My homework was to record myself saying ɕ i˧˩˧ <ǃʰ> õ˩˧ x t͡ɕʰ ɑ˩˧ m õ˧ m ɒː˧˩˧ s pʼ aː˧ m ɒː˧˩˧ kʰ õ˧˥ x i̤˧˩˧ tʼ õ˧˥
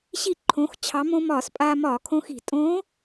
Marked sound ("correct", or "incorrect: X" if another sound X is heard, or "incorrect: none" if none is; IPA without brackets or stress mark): correct